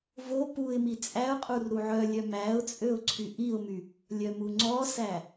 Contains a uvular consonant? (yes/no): yes